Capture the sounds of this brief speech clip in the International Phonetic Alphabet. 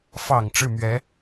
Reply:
f ɑ˨˩ ŋ ʈ͡ʂ ɻ̩˥˩ m ɥ ɛ˧˥

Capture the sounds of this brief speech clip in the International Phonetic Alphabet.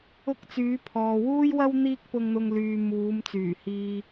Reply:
ʊ˥ k̚ t͡s yː˨˥ pʰ ɔː˨ w uː˥ j w ɐ˥ w n̪ iː˥ k̚ p ʊ˧ ŋ n̪ ʊ˧ ŋ l yː˨ m uː˨˧ m t͡s yː˨˩ h iː˧

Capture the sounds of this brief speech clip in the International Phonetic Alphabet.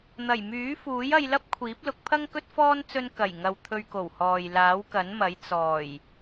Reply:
n̪ ɐ˨˩ j m yː˨˥ f uː˨˥ j ɐ˧ j l ɐ˥ p̚ kʷʰ iː˨˥ p̚ l ʊ˨˥ k̚ pʰ ɐ˥ ŋ k ɵ˥ t̚ f ɔː˥ n t͡s ɵ˧ n k ɐ˨˩ j ŋ ɐ˨ w t̪ʰ ɵ˧ ɥ k o˨˩ w h ɔː˨ j l aː˨˥ w k ɐ˨˥ n m ɐ˨˥ j t͡s ɔː˨˩ j

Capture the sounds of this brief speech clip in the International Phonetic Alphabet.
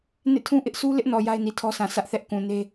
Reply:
n ḛ˦˨ tʰ ũ˦ ʔ ɪ˦ ʔ sʰ u˦ l ɪ˦ ʔ n ɔ˨ j a˦ ɪ̯ n i˨ tʰ ɔ˦ sʰ ã˨ sʰ ä˦ ʔ θ ɛ˦ ʔ k ũ˨ n e˦

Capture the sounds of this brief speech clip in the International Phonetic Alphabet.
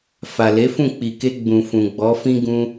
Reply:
f a˨ l e˨˦ f ũ˦˨ k͡p i˨ k e˧ ɡ͡b ũ˨ f ũ˨ ɡ͡b ɔ˨˦ f ĩ˦ ɡ ũ˧

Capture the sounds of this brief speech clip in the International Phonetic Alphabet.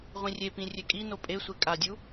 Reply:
ʁʷ ĩ rʲ e p ĩ rʲ e kʼ i n o pʼ e sʷ e kʼ a dʲ u

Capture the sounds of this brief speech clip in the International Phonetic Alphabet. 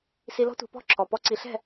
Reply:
s i˧ l ɔ̤˦ tʷ ɛ̤˧ p ɔ̤˦˨ ǁʰ ɔ˨ p ɔ˧ ǀ i˨ ɬ ɛ̤˦˨

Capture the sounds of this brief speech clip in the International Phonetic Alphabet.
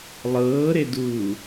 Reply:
lˠ ɤː ɾ e d uː

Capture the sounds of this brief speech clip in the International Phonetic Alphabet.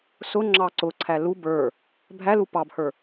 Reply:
s ʊ ŋ͡ǁ ɑ ǀ ʊ ǀʰ æ l u b ə˞ | bʱ æ l u p ɑ b h ə˞

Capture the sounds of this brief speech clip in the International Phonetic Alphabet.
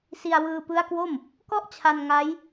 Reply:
s i˧ a̯ w ɯː˧ p ɯ˦˥ a̯ k w o˥˩ m | k ɔ˥˩ ʔ t͡ɕʰ a˧ n ŋ a˦˥ j

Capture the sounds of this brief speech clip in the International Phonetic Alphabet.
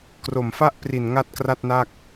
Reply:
k r o˨˩ m f a˥˩ ʔ p r i˨˩ n ŋ a˥˩ t̚ k r a˥˩ t̚ n a˥˩ k̚

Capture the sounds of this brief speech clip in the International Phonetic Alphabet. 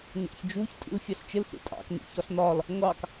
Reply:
ɲ ɑ̰ ç d͡ʒ u ç tʼ ḭ l fʲ ɑ ɬ t͡ʃ ɪ l ɬ ḭ tʼ ɑ̰ k n ḭ ç ɒ ɬ n ɒ l | ŋʷ ɑ k

